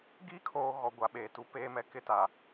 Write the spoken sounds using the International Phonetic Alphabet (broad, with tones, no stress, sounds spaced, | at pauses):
ɡ i˦ kʰ oː˨ ɣ ɔ˨ ɡʷ a˨ ɓ eː˨ t u˦ p eː˦ m ɛ˦ k ɪ˦ t a˨